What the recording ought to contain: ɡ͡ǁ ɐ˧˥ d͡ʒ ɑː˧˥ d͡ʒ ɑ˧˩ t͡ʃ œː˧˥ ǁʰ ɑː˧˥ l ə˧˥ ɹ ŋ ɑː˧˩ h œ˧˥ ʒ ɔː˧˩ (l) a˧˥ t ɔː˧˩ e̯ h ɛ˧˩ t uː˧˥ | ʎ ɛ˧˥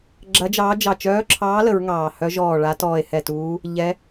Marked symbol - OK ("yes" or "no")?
no